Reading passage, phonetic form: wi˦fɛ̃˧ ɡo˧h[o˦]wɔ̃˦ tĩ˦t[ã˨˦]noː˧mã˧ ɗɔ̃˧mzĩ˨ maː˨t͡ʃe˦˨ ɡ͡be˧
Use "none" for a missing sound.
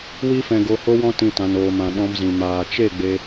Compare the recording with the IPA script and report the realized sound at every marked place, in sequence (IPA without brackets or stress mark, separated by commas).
o˦, ã˧